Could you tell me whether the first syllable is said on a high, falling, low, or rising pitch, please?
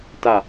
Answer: falling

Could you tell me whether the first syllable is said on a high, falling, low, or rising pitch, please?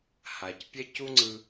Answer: low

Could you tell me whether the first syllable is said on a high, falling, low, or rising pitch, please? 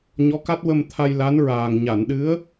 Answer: rising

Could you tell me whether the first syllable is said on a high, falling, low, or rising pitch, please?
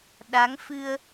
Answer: rising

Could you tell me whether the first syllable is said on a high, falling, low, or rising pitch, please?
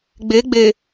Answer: rising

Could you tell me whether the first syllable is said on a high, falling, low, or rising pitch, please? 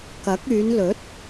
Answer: rising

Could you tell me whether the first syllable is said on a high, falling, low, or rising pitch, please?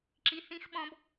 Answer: high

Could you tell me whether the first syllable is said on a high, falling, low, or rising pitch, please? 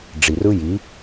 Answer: low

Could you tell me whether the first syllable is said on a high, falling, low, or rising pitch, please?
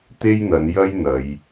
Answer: high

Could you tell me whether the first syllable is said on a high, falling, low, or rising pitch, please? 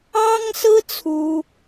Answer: high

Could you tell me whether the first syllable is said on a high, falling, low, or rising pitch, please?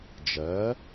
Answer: rising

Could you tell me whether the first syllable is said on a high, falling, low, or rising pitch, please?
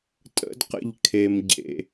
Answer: high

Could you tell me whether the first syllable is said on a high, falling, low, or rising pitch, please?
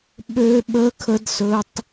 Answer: high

